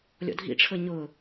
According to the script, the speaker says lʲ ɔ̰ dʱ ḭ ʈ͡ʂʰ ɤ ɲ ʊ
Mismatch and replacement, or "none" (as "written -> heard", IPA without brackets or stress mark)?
none